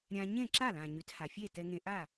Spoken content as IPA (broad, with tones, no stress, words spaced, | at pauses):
ɾʲã˧ ɲẽ˥˩ǁa˥˩lã˩ ɲy˩˥tha˩fʲe˥˩ tɛ˧ŋẽ˧ʔa˥˩